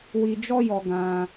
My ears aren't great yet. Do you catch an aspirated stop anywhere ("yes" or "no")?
no